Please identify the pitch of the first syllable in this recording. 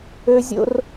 high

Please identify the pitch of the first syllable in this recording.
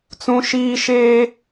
high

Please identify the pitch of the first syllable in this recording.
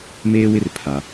high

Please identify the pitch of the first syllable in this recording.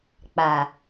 low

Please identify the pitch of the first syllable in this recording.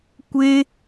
high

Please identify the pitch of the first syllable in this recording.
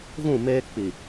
falling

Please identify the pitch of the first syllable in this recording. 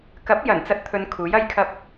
rising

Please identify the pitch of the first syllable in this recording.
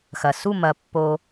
low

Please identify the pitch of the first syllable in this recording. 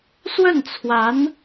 falling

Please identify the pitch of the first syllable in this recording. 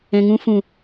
low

